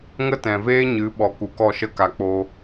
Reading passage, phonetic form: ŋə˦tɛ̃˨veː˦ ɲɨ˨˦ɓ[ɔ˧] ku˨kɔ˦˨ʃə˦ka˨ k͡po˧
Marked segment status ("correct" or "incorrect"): incorrect